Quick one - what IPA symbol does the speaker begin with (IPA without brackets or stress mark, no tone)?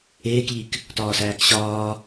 eː